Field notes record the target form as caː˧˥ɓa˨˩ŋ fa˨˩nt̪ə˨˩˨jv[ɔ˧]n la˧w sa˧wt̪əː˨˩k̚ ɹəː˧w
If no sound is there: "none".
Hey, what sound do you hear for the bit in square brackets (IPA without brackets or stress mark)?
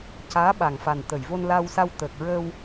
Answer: o˧